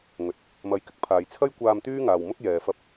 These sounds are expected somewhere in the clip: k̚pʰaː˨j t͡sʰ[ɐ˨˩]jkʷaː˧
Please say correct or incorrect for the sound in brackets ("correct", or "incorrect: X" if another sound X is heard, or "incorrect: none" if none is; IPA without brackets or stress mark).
incorrect: ɐ˥